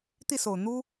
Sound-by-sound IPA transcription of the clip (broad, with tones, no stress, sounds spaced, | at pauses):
t̪ i˥˩ s o˨˩ ʊ̯ n̪ u˥